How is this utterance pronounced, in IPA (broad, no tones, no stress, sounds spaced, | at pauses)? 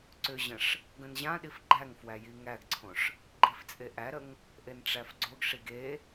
ǀ ʏ ʑ ə̃ ʂ | ɡ ə̃ n ʑ ã ɗ i f ɡ͡ǃ æ ŋ f w æ j i ŋ æ ɡ ǀʰ õ ʂ | ɡ͡ǃ i f t͡sʼ e ʔ æ ɾ ə ŋ | ʔ e n ʈ͡ʂ æ f ɡ͡ǀ o ɡ ʂ i ɡ e